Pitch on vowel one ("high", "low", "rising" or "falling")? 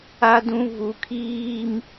high